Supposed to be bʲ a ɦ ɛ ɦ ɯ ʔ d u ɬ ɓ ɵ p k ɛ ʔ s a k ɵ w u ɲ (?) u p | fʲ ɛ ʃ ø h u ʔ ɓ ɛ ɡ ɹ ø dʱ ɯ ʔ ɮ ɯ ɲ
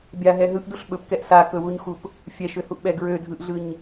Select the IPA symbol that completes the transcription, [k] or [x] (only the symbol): x